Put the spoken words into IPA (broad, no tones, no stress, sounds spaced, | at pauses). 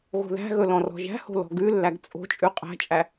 ɣ o̤ ð æ̤ ɣ ɵ l ɔ̃ r ɔ̤ ʒ æ̤ h o̤ l ɔ̤ ɡ ʉ lː æ ɡ t͡sʼ o̤ t͡ʃʼ ʉ qʼ æ̤ t͡ʃʼ æ